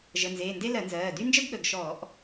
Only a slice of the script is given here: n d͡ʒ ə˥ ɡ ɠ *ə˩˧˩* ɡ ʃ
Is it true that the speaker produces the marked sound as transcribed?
yes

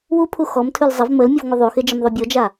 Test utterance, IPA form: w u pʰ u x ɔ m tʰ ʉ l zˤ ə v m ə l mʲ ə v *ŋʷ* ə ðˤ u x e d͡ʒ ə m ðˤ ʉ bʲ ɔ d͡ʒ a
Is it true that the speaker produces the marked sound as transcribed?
yes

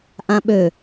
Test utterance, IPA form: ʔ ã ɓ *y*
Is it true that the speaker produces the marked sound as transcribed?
no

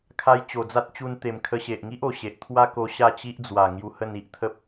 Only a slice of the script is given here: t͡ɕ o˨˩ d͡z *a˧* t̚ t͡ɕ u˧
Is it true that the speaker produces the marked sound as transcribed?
no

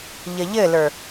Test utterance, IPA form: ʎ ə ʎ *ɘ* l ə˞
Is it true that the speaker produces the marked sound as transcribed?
yes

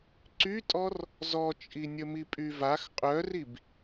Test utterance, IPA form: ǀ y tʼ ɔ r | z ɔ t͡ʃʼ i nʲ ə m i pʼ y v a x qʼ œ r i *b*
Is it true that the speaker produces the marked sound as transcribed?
yes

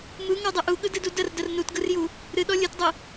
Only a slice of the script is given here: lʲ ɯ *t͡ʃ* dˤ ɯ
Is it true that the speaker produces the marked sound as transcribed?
no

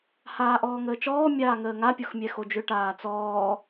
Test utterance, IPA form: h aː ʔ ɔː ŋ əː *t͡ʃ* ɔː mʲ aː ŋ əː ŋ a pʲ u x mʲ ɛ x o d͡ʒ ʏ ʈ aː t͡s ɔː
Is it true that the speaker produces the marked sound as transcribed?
yes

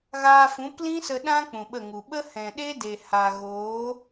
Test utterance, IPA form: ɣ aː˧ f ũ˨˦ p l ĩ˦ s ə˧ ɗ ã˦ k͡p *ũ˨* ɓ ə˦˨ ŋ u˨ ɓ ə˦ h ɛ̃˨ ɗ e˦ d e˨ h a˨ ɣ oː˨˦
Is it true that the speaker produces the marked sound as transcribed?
yes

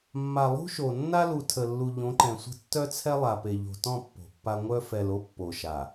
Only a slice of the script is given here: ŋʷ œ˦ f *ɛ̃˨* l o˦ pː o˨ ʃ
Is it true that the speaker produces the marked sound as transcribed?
no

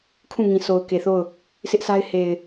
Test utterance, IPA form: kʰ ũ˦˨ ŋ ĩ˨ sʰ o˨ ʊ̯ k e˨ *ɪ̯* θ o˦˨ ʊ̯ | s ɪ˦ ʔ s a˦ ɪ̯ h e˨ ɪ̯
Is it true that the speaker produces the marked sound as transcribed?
no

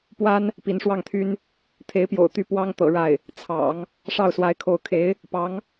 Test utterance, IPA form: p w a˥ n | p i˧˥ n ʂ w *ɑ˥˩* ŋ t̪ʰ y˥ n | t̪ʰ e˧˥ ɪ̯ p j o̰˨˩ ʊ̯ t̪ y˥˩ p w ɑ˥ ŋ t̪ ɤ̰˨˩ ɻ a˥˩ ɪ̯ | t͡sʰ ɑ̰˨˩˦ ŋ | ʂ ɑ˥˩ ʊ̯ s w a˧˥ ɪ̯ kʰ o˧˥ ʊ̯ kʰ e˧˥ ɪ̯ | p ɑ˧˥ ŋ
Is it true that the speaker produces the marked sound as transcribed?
yes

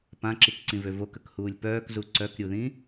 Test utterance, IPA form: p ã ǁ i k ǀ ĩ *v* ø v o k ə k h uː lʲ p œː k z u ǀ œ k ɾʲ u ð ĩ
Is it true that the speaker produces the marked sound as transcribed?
yes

